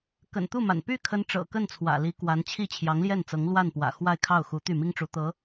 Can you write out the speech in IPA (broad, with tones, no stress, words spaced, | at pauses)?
kə̰˨˩nt̪u˥˩ma̰˨˩n py˥˩kʰə˧˥n ʈ͡ʂɤ̰˨˩kə˥˩nt͡sʰwä̰˨˩ li˧˥kwa˧˥n t͡ɕʰi˥˩t͡ɕʰjɑ˧˥ŋljɛ˥˩nt͡sɤ˧˥ŋ lwa˥˩npwä̰˨˩xwa˥˧ɪ̯kʰɑ˥˩ʊ̯ xu˧˥t̪y˥˩ mi˥ŋʈ͡ʂu˧˥ t̪ɤ˧˥